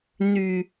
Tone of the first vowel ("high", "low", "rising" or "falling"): low